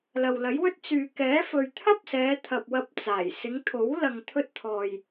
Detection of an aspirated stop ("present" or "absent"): present